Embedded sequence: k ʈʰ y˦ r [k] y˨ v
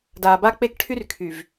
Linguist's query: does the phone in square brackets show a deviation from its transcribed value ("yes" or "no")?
yes